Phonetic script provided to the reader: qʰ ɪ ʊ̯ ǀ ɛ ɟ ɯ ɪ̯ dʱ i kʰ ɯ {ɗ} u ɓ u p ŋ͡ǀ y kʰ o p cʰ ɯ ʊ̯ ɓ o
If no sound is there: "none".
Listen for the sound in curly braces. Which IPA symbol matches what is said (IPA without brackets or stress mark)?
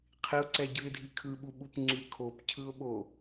ɓ